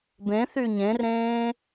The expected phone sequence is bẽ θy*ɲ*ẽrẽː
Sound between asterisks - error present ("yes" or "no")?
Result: no